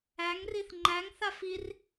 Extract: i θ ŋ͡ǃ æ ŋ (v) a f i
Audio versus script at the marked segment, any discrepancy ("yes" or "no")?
yes